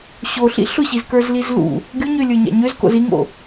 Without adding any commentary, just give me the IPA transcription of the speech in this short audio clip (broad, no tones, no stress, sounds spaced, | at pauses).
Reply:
ɕ o ɬ ḭ ɬ ʊ ɕ i z k ə˞ z l i z l ṵ | ɡʲ o ɲ ø lʲ ə˞ ɲ a̰ ɲ ø z k o̰ z i ŋ o̰